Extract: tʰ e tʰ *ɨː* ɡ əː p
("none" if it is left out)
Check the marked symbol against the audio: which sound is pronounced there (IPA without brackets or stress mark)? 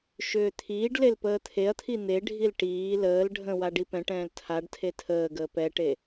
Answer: əː